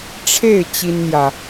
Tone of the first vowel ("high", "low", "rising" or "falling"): falling